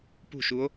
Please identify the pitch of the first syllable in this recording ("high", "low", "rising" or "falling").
falling